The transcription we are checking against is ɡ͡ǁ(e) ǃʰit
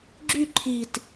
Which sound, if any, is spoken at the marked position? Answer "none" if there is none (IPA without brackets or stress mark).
y